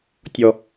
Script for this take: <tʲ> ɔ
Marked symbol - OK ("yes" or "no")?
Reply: yes